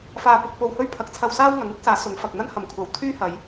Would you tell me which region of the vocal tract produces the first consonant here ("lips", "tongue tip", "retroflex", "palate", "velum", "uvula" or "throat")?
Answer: lips